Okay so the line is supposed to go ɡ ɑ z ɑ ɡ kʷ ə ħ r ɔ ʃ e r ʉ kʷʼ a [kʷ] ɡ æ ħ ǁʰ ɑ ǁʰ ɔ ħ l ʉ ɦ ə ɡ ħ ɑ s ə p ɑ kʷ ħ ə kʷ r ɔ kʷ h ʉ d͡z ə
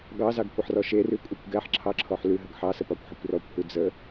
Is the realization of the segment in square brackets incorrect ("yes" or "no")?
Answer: no